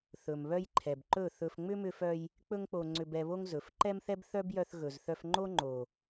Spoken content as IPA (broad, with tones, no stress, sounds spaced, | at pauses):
θ ɵ˨ m β œ˦ j ǃʰ ɛ˨ b ǃ ɵ˦˨ θ ɵ˧ f ŋ͡m ʏ˦ m ʏ˧ f œ˧ j | k͡p ɵ˦ ŋ k͡p o˧ ŋ͡ǀ ʏ˧ b ɛ˧ β o˦ ŋ z ɵ˨˦ f ǃ ɛ˦ m θ ɛ˦ b θ œ˦ b j œ˧ θ ɣ ɵ˨ z θ œ˧ f ŋ͡ǃ o˦ ŋ͡ǃ o˨